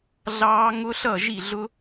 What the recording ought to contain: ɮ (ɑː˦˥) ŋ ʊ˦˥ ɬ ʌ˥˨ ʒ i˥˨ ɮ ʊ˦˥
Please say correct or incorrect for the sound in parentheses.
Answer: correct